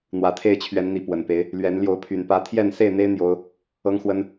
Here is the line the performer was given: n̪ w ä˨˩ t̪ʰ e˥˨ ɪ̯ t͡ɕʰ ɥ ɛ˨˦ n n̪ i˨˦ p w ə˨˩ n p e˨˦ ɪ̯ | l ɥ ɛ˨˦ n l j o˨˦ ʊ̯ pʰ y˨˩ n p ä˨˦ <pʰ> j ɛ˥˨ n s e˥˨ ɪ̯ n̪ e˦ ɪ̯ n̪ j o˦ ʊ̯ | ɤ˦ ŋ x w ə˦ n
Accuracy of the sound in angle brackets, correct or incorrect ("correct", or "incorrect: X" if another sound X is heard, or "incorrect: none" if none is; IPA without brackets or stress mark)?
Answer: incorrect: t̪ʰ